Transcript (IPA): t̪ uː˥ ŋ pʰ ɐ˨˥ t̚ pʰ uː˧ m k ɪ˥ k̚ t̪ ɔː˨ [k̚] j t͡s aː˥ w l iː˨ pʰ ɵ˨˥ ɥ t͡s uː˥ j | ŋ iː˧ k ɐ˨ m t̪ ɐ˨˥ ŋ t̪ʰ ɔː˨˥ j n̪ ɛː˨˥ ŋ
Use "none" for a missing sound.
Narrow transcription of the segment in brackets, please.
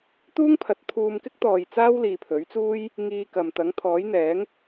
none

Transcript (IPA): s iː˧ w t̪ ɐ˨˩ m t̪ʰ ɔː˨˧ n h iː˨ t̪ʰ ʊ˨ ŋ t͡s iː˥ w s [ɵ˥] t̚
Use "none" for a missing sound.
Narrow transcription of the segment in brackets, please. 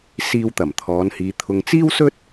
ɵ˥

